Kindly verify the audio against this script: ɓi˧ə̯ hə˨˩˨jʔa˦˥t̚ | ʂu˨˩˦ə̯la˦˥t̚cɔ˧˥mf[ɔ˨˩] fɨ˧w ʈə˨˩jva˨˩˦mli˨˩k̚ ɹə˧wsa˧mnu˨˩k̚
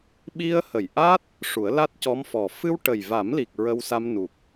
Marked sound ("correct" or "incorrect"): correct